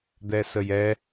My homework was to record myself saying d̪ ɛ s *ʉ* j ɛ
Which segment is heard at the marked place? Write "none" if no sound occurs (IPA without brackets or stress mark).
ə